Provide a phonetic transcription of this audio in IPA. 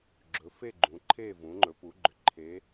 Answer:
ɡ͡ǁ ɵ˩˧ f e˥˨ ɡ͡ǃ ũ˩˧ ǃʰ e˥˨ v ũ˩˧ ŋ͡ǃ ɵ˩˧ p u˩˧ ɡ͡ǃ ʏ˩˧ ǃʰ e˩˧

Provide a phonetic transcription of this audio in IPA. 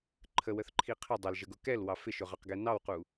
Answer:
ǃʰ ə w ə θ ǃʰ i qʰ ɪ dˤ ə l ʒ ə ɡ ʊ k ɛ l w ɑ f ɪ ʃ ʊ ʁ ɑ q ɡ ɛ n ɑ w q u

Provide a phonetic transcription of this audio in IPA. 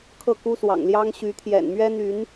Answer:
kʰ ɤ˥˨ k u˦ s w ɑ̰˨˩ ŋ l j ɑ˦ ŋ ɕ y˨˦ t̪ʰ j ɛ̰˨˩ n m ɥ ɛ˦ n̪ y˨˦ n

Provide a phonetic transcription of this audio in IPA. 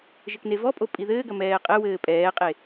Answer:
ʒ ɘ k n e v ɔ pʼ o pʼ i ð ɘː ɡ ɐ m ɛː qʼ ɘ w ɘː pʼ ɛː qʼ e

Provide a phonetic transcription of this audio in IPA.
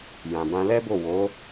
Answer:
j ã˨ b ã˧ l ɛ˦ b o˦˨ w o˨˦

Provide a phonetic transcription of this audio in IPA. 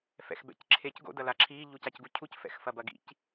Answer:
f ɛ̰ x b ɛ̰ c ǁʰ e c ɡ o̰ d ɐ l a ǁʰ i ʎ u c a c ɡ u cʰ u c f ɛ̰ x f ɐ b ɐ ɡ ḭ c

